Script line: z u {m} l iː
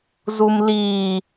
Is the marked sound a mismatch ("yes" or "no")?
no